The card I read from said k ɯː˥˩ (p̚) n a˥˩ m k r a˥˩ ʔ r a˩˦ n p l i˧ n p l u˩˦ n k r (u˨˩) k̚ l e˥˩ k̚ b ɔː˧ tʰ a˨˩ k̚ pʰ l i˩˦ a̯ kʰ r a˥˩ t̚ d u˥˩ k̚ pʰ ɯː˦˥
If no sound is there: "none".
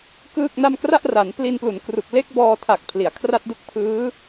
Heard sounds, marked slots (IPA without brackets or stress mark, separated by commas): k̚, u˨˩